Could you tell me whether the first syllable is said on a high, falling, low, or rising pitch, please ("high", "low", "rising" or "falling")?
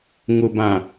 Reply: low